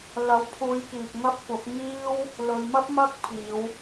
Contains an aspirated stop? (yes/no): yes